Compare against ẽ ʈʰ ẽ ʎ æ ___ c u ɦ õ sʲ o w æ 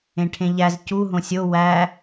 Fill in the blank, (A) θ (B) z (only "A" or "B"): B